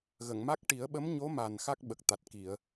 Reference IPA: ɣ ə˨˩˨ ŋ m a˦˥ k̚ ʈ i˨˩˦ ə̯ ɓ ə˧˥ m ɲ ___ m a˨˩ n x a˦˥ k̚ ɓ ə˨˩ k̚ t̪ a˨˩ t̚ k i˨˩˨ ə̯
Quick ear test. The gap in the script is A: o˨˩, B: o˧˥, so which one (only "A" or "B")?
B